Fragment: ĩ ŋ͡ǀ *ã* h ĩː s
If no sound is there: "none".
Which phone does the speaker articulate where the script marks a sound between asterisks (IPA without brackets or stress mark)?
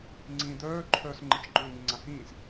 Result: ã